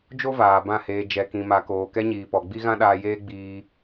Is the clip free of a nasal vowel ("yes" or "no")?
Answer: no